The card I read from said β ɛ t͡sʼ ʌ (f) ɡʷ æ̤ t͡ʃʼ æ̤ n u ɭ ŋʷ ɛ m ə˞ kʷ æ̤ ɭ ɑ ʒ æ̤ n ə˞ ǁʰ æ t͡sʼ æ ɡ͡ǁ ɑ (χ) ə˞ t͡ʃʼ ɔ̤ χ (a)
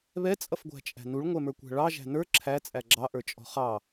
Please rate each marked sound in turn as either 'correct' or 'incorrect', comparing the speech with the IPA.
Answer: correct, incorrect, incorrect

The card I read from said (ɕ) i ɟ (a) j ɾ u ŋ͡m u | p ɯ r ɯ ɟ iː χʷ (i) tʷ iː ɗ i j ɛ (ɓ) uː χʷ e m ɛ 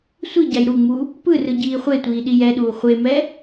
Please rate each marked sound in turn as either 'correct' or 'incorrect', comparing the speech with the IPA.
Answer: incorrect, correct, incorrect, incorrect

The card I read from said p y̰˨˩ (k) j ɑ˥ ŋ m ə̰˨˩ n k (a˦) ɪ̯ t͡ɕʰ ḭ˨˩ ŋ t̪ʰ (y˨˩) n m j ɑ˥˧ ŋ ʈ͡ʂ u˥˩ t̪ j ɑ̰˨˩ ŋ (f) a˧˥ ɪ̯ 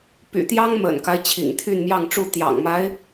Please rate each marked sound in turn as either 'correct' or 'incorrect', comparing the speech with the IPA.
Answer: incorrect, correct, incorrect, incorrect

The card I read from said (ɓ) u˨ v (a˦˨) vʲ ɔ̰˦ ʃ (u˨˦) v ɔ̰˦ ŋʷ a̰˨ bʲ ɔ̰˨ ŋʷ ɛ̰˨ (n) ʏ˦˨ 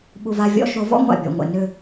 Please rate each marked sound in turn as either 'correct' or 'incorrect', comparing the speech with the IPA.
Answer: correct, correct, incorrect, correct

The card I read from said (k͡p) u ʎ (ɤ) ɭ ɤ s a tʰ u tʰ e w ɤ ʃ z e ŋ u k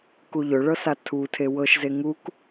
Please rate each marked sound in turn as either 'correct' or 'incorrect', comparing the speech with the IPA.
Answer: incorrect, incorrect

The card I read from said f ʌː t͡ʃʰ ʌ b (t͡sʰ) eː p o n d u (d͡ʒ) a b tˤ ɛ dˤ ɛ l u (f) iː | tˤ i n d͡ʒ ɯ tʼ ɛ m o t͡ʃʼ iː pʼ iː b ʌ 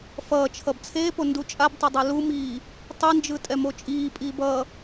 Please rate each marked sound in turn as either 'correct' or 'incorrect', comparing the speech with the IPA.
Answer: correct, incorrect, incorrect

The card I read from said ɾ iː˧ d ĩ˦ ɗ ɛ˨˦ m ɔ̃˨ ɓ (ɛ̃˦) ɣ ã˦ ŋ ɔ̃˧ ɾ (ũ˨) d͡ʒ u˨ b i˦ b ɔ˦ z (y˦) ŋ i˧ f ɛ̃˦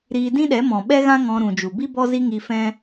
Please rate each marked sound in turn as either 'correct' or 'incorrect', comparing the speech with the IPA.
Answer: incorrect, correct, incorrect

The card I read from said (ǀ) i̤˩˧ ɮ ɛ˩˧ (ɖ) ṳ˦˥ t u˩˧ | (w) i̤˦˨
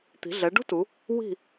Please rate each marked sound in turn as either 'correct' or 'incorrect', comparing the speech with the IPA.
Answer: incorrect, correct, correct

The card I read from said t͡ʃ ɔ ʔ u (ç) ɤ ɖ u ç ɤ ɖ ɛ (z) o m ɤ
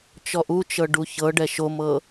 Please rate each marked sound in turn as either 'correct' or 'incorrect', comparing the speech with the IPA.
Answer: incorrect, incorrect

